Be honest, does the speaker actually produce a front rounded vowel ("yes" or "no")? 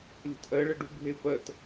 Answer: no